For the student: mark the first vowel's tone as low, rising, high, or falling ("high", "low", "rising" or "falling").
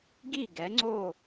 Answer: falling